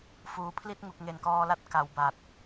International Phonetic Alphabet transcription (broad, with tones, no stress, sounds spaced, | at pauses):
f uː˨˩ pʰ l i˥˩ t̚ ŋ u˨˩ k̚ ŋ e˨˩ n k ɔː˧ l a˦˥ t̚ k a˩˦ w b a˨˩ t̚